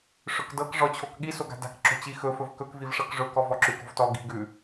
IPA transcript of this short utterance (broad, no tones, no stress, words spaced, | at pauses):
ʂɵkdɤk ʐɔt͡ɕʰokɠi soɡa̤da̤k ǁo̤t͡ɕixɵ fɵvkɵk vivʂɤkʐɵ kɔvɔǁʉk o̤vtɔ ɡi̤ ɡʉ